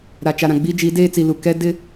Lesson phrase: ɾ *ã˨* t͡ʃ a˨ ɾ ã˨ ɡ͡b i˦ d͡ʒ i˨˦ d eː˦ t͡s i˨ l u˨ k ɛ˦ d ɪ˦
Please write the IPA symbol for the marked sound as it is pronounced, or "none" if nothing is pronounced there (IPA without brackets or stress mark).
a˨